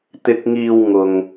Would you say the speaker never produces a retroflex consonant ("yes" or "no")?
yes